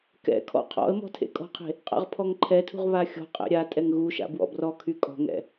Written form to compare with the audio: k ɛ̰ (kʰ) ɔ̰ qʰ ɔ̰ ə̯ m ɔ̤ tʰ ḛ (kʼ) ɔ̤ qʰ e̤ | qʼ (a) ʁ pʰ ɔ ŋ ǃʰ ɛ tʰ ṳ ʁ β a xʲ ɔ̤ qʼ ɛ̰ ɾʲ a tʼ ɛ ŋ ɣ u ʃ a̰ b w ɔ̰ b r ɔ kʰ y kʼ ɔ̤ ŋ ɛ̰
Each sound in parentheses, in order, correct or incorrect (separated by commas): correct, correct, incorrect